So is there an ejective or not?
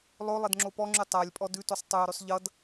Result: yes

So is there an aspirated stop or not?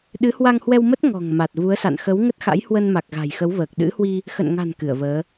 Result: no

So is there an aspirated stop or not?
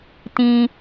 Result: no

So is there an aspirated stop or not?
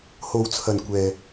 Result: yes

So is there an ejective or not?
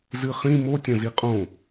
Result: yes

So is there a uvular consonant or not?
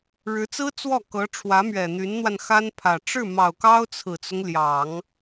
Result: no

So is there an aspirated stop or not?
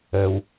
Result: no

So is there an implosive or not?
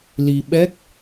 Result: yes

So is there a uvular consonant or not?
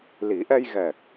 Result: no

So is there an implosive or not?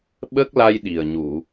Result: yes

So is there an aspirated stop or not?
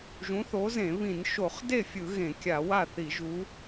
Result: no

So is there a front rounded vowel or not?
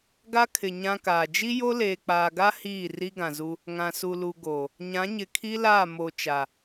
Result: no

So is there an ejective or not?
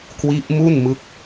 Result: no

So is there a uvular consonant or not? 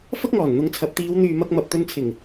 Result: no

